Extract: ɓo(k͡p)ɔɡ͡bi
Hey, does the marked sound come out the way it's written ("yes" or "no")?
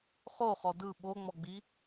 no